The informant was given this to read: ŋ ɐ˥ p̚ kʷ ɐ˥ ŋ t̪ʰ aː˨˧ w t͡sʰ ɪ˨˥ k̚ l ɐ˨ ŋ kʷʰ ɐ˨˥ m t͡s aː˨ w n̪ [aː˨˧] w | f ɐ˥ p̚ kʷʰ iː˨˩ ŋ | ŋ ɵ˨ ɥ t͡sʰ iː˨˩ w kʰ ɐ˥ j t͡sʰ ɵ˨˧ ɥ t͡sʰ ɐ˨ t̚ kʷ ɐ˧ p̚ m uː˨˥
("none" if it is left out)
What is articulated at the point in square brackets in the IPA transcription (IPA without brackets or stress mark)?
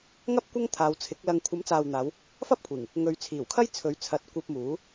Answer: aː˨˧